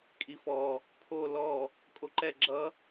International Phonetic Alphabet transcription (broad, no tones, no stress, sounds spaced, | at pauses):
kʼ i f ɔ | pʰ o l ɔ | kʼ o ǃ ɛ ɡ͡ǁ ʌ